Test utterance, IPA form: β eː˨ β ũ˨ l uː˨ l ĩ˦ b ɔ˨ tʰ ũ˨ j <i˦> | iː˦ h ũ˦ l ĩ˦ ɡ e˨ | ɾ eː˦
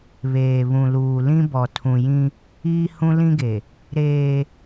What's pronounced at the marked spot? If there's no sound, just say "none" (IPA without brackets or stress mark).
ĩ˦